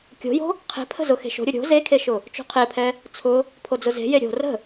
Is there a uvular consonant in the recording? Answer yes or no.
yes